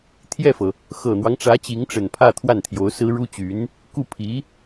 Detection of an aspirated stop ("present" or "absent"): present